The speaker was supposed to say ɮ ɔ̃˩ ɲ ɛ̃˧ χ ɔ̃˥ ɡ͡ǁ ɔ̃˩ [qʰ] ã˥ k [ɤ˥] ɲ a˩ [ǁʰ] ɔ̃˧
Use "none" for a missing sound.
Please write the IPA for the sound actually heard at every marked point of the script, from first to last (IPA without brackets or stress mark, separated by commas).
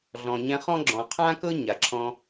qʰ, ɤ˥, ǁʰ